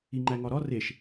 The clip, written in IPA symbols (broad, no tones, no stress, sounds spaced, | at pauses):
i ŋ͡ǃ æ ŋ ɒ ɾ ɒ r e ʃ